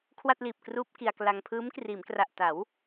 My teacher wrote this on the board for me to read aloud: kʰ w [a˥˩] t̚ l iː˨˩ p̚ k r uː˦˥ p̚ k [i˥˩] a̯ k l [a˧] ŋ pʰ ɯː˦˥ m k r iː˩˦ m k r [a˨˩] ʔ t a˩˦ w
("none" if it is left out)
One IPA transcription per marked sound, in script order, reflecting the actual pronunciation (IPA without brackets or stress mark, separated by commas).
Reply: a˥˩, i˧, a˧, a˨˩